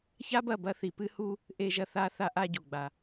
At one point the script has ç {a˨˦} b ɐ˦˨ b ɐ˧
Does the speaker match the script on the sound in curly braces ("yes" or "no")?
no